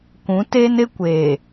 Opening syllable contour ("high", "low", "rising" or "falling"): rising